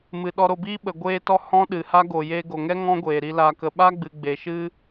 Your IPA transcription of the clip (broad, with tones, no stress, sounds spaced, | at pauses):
m ɨ˨ ɗ ɔ˧ ɾ o˧ b iː˦ ɓ ə˨ ɡʷ eː˦ t ɔ˦ h ɔ̃˦ ɗ ɨ˨ h a˦ ɡ o˨ j eː˧ ɡ o˨ ŋ ɛ˦ ŋ ɔ̃˦ ɡʷ eː˨ ɾ i˧ l a˨ k ə˨ ɓ a˦ ɡ͡b ɨ˨ ɡ͡b e˨ ʃ ɨ˦